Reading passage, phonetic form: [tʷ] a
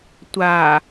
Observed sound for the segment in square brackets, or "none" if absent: tʷ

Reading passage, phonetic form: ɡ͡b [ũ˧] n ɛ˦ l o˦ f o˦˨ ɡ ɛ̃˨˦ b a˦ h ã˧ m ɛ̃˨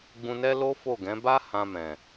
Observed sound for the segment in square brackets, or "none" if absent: ũ˧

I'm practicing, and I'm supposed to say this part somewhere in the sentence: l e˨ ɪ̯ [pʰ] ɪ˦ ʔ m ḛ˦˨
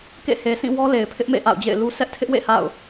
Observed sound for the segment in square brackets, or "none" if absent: pʰ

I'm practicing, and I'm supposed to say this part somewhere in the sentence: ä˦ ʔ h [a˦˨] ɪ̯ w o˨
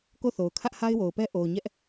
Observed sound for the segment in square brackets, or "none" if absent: a˦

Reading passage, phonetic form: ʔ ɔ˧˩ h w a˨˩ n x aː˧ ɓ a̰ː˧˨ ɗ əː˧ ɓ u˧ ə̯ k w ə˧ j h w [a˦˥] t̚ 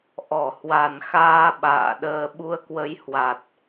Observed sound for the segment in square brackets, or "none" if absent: a˨˩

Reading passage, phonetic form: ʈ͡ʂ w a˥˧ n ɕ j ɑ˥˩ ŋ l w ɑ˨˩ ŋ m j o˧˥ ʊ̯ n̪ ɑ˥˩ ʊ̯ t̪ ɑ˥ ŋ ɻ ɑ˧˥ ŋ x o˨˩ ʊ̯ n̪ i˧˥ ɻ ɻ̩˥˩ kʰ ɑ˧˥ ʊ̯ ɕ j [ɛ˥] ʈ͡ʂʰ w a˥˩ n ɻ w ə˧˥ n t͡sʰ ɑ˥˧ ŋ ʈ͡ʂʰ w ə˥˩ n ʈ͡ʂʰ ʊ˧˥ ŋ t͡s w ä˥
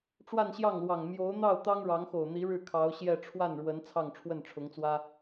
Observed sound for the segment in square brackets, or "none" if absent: ɛ˥˧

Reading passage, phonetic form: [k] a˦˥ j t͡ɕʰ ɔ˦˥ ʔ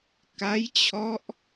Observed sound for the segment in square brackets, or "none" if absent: k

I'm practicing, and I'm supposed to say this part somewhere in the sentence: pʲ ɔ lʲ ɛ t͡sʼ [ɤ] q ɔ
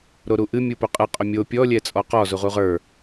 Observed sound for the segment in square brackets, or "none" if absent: ɔ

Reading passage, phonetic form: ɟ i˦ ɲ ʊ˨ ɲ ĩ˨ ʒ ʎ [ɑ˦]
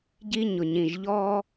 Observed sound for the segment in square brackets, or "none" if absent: ɔ˦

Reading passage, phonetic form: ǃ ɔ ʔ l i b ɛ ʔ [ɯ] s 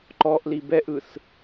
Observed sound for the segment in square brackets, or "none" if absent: ɯ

